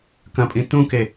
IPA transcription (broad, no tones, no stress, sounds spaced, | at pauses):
k ɐ̃ pʼ ĩ t ũ k e